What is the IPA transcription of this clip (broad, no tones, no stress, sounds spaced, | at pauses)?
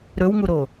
ɾ ɵ w ŋ u ɾ o